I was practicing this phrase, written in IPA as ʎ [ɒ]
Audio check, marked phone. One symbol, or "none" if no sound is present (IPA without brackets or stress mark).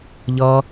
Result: ʌ